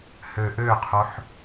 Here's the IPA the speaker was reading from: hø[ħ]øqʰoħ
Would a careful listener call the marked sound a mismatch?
yes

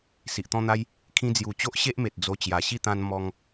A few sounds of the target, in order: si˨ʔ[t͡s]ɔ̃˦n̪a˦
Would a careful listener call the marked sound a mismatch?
yes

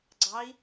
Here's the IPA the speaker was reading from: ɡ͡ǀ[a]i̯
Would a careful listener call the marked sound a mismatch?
yes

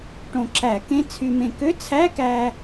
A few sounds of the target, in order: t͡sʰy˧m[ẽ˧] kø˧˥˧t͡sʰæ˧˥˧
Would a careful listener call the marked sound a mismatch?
no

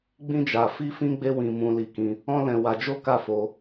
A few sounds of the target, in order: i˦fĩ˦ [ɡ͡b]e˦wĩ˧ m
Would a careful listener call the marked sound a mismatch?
no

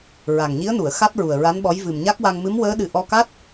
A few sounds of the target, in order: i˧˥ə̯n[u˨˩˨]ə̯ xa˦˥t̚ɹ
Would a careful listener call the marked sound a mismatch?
no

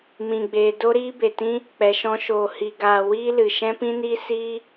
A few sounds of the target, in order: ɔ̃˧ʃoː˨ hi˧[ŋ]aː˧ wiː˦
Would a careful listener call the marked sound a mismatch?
yes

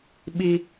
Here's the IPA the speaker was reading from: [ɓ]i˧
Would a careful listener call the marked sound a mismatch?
no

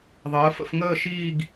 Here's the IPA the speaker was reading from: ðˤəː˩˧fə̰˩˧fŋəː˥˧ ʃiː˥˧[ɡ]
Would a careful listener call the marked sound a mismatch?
no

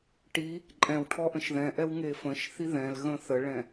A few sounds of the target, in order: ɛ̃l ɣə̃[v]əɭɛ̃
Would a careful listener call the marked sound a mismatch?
yes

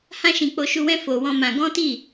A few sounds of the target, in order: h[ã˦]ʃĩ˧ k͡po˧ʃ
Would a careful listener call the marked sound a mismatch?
no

